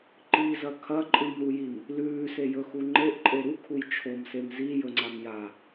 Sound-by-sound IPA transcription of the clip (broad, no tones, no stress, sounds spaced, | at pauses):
ǃ i z ɐ kʰ ɐ ǃʼ ɨ m ɾ u j i m | l ʉː s e j ɵ x u ŋ͡ǃ e ʔ ǃʼ e ɾ u kʰ u j t͡ʃʰ o m s e m z i j ɵ ŋ͡ǀ a m j a